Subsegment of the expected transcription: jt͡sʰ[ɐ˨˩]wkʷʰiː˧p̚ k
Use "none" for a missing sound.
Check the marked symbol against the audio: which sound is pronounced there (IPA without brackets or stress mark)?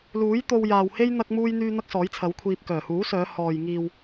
ɐ˨˥